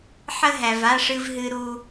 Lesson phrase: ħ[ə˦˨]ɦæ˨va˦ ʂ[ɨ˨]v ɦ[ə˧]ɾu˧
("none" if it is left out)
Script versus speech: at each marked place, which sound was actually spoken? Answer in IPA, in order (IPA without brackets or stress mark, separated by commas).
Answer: ə˦, ɨ˧, ɨ˧